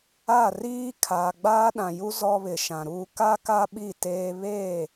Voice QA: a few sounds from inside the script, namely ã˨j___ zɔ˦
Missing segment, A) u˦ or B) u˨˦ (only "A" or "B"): A